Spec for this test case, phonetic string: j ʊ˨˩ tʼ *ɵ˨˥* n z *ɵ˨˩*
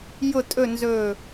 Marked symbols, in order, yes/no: no, yes

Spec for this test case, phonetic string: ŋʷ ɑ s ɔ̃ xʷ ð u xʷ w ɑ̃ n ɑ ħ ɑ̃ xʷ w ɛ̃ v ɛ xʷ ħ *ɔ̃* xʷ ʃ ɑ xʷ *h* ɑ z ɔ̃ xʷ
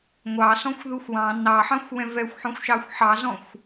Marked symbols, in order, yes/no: yes, no

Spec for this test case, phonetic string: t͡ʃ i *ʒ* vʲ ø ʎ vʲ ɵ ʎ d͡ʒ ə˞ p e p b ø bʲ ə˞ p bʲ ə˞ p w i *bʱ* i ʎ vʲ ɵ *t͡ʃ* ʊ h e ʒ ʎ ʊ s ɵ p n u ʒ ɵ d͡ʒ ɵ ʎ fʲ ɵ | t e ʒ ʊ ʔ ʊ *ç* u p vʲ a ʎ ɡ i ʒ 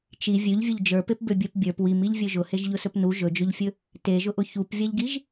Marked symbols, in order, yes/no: no, no, no, yes

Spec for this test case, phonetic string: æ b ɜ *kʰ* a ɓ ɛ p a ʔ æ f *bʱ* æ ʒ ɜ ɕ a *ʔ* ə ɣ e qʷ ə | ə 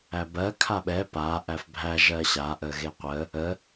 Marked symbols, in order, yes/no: yes, yes, yes

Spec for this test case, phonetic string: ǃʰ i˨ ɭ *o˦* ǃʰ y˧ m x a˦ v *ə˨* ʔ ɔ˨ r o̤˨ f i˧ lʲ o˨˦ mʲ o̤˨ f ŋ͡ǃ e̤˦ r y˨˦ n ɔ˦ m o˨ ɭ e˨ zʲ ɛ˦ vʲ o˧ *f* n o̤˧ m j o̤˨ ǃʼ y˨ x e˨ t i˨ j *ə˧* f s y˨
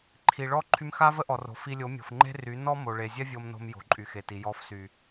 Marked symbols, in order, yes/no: no, no, no, no

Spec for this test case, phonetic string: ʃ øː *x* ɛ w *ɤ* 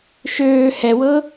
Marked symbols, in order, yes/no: no, yes

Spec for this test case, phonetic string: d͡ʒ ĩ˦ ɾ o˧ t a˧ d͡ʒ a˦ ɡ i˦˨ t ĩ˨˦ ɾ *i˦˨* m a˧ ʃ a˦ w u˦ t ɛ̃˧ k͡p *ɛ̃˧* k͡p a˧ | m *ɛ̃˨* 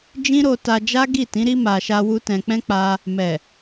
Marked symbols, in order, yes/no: no, no, no

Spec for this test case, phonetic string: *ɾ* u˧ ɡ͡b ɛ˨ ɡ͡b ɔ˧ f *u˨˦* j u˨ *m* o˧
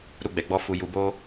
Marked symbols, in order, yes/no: yes, no, no

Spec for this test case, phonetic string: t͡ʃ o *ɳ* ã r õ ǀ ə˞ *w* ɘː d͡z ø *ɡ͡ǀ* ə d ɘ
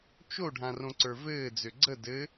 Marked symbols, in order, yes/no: no, no, yes

